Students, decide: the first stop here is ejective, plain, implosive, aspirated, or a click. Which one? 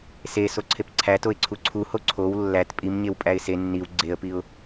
click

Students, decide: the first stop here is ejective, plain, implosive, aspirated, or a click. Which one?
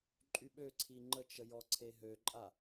click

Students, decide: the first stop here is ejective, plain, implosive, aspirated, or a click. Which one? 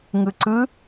click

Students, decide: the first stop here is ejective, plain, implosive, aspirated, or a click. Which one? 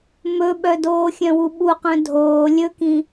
implosive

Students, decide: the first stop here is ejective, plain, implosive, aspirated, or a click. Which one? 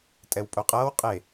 ejective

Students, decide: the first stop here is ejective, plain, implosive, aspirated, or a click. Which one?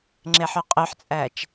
click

